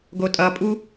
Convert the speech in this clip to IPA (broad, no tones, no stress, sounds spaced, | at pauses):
ɡ o tʼ ʌ pʼ u